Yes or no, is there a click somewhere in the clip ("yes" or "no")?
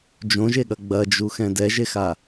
no